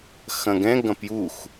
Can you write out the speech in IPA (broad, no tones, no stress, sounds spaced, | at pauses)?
x ɐ̃ ɡ ɛ̃ ɡ ɐ̃ p j u x